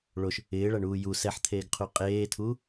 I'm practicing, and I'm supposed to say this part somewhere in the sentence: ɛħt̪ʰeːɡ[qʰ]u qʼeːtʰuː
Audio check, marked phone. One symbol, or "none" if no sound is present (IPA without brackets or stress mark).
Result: qʰ